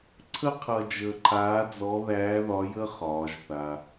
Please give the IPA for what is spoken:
ǀʰ ə˥ qʰ ʌ˧ d͡ʒ əː˧ ǃʰ aː˧˥ d͡z ɔ˧˥ ð æː˧˥ ð ɒ˧˥ j ə˥ χ ɒː˩˧ ʒ θ a˩

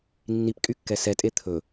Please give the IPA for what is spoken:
nː i p kʼ y kː ɛ s ɛ tʼ e t̪ʰ ɵ

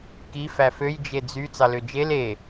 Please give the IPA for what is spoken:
k i f æ f ø j d͡ʒ e d͡z y t͡s ɑ l ø d͡ʒ e l e

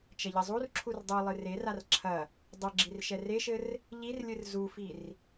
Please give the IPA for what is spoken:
t͡ʃ ɐ ʎ ɘ zˤ u r ǁʰ u r dˤ u lˠ ɨ r e r a r ǁʰ ɐ | dˤ ɨ ɡ͡ǁ i r ʃ ɛ r e ʃ ɘ r | ʎ i r lʲ ɨ r z u f i r

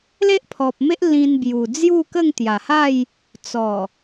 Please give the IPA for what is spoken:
l e˦ ʔ pʰ ɔ˨ p̚ m e˦ ʔ l ĩ˧ n b j u˨˩ d͡z j u˥˧ k ə˥˧ ŋ t̪ j a˨˩ h a˥˧ j | t͡s ɔ˨˩

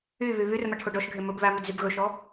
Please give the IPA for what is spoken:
y β y β y r m a ʈʰ o ɖ ɔ ʃ ɡʱ e m ɵ b β æ m y d z y b ɣ ɵ ʃ ɔ

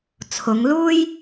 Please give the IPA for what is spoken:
t͡sʰ ʊ˨˧ ŋ l uː˥ j

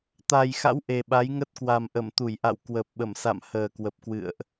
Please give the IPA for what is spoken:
t̪ a˨˩ j x a̰˧˥ w ʔ e˨˩ ɓ a˨˦ j ŋ ə˦˥ t̚ k w a˨˩ m ʔ ə˧˩ m t̪ u˧˩ j ʔ a̰˧˨ w k w ə˨˩ p̚ ɓ ə˧˩ m s a̰˧˨ m h əː˨˩ k w ə˨˩ p̚ k w ɨ̰˧˨ ə̯ ʔ

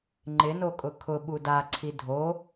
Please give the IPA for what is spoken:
ŋ͡ǃ ɪ n o kʼ ʊ kʰ ʊ ɓ u d a ǀʰ i dʱ o

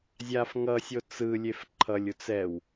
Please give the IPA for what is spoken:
zʲ a f ŋ ʌ sʲ o t͡s ɯ lʲ e f ǃʰ ʌ lʲ u t͡s ɛ w

